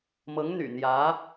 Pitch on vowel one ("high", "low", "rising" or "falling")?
rising